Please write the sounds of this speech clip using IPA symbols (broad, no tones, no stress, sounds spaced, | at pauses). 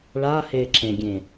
ɭ a h e ǁ ẽ ɡʲ ẽ